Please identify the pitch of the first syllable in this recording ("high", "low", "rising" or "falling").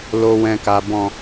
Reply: low